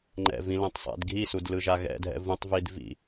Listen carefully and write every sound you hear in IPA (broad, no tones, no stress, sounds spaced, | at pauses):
ŋ͡ǃ ɛ̰ v ĩ l ɛ̃ tˤ sˤ ɛ̰ d ɡʱ i s u d l ɯ ʒ a ɣ ɛ̰ dʱ ɛ̰ v ũ tˤ v i d v ḭ